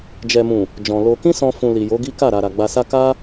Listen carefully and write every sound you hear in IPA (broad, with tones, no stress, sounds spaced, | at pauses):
d͡ʒ ɛ˨ m ũ˨ | d͡ʒ ɔ̃˨ l o˧ k ĩ˦ s ɔ̃˧ f ũ˨ l i˨ j o˨˦ ɡ i˦ k a˦˨ ɾ a˨ ɾ a˨ ɡ͡b a˧ s a˦ k a˦